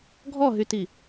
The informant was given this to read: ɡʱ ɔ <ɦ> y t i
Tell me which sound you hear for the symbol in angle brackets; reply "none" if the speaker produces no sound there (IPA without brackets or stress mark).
ɦ